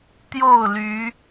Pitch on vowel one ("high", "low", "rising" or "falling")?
falling